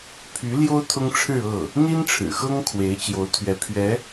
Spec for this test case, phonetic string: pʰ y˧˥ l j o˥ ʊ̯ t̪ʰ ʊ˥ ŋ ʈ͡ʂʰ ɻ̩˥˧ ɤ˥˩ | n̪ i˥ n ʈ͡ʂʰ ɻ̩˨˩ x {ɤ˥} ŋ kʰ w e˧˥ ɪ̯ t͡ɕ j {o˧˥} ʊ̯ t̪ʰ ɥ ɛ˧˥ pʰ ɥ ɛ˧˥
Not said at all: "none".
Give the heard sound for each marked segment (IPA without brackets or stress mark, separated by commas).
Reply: ɤ˥, o˧˥